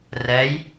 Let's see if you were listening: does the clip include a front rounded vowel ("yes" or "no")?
no